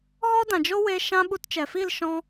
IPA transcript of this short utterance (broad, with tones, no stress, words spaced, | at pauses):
ɣɔ˦dã˨d͡ʒo˦we˧ ʃã˦ ɓu˧tt͡ʃɛ˨fi˦˨l ʃɔ̃˦